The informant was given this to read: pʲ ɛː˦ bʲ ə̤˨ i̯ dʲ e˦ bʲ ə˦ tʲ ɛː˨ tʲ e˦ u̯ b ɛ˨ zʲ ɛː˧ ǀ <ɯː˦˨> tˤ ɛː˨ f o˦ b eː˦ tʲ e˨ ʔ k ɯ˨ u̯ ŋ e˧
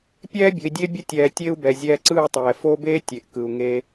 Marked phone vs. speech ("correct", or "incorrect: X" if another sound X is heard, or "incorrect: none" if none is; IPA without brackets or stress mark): correct